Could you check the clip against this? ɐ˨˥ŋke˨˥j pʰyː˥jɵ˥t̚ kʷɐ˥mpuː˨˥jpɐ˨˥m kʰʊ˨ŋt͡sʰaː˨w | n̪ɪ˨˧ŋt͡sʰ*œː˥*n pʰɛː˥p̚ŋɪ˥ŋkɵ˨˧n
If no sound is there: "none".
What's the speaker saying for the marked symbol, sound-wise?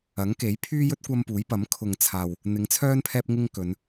œː˥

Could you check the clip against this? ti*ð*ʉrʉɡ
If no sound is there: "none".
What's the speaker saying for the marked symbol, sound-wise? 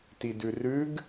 d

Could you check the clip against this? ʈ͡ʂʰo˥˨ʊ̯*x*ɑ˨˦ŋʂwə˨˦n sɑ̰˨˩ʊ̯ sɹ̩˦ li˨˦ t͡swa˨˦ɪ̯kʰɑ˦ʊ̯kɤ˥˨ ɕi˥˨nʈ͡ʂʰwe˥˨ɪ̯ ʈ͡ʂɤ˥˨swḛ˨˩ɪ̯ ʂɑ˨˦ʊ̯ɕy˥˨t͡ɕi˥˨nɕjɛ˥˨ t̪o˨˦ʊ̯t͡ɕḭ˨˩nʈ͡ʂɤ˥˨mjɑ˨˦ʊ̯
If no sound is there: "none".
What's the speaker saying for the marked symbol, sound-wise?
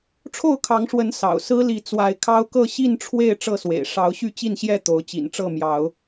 kʰ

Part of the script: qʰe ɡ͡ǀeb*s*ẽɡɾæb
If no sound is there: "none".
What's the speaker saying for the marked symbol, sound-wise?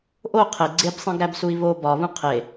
sˤ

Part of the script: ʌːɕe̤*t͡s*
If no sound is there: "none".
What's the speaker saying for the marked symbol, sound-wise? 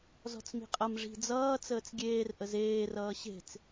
t͡s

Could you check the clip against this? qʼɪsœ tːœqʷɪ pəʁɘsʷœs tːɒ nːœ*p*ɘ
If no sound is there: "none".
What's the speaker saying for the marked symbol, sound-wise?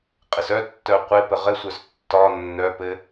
p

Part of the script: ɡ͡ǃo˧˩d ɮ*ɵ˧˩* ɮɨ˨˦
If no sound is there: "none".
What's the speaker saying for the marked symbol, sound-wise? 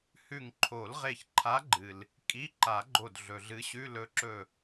ɵ˩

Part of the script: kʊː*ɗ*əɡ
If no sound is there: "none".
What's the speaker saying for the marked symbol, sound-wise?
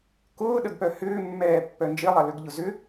ɗ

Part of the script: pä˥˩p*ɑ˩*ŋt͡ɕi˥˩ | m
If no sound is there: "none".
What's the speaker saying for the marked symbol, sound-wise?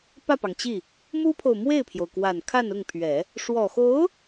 ɑ˩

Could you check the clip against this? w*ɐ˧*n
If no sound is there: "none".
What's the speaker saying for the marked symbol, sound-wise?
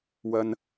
ɐ˧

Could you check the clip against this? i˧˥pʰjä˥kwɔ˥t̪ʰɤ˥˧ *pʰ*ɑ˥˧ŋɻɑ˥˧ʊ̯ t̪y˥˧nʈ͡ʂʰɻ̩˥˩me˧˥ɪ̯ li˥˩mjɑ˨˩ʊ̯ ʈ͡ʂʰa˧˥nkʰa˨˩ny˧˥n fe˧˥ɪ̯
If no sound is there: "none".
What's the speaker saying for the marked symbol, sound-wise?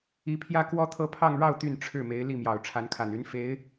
pʰ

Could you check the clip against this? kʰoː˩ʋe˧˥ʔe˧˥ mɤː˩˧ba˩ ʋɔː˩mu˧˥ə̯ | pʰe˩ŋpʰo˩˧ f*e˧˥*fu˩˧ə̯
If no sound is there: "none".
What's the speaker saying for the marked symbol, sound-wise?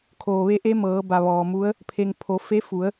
e˧˥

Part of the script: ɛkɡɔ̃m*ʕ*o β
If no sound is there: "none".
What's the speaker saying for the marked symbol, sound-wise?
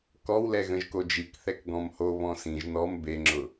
h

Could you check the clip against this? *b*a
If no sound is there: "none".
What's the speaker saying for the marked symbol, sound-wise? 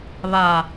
β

